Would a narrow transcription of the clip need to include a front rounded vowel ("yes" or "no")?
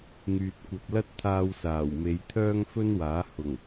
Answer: yes